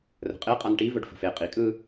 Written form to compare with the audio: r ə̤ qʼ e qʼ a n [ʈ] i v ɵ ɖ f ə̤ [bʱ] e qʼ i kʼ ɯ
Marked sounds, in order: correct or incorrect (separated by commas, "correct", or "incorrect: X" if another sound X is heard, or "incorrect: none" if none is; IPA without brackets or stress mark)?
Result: correct, incorrect: f